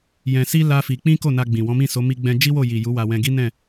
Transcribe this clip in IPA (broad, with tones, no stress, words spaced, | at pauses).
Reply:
jɛ̃˧si˦ la˦fi˧ k͡pĩ˦ko˦˨na˧ɡ͡bĩ˨ wɔ̃˨˦mĩ˦˨so˨˦ mi˧ɡ͡bɛ̃˧ d͡ʒi˦wo˦˨ji˨ ju˨˦wa˧wɛ̃˧ɡi˦ nɛ̃˦˨